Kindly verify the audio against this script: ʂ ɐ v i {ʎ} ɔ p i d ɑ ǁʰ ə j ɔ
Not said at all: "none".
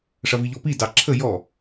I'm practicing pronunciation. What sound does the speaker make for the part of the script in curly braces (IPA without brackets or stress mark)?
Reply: ʎ